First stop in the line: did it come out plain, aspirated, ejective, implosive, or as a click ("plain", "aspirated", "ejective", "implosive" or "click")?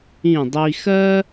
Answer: plain